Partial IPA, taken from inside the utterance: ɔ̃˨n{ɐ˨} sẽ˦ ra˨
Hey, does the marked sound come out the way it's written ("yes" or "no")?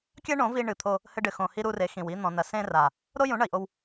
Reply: yes